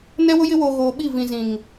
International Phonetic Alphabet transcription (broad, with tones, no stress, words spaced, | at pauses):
nɛ˦wʊ˦jɪ˦woː˨ ɣoː˨ɓi˦˨ vĩ˨zĩ˨ŋ